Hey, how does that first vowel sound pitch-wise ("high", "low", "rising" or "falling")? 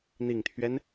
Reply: low